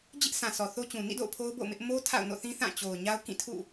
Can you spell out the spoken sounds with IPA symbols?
d͡ʑɪ˦ʔ sʰã˨ sɔ˨θo˦t͡ɕũ˨ nḭ˦˨do̰˦˨ʊ̯ pʰo˦ʊ̯bo̰˦˨ʊ̯mɪ˦ʔ mo˦ tʰa̰˦˨ʊ̯no̰˦˨ θĩ˦ θã˦˨t͡ɕo˨ʊ̯ ɲa˦ʊ̯kĩ˦˨tʰṵ˦˨

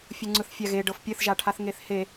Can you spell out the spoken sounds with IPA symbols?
fʲoŋ͡ǀɯθfʲaɣe ɖɤfpʲɘθʒaʈʰaθ ŋeθhe

